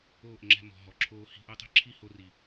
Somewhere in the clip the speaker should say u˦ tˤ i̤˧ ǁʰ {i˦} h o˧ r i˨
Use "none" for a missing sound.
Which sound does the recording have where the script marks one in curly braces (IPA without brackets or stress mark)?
i˦